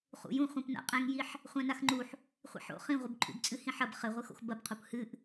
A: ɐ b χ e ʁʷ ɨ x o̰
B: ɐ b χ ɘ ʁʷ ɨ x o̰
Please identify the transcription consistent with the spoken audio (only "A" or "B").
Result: B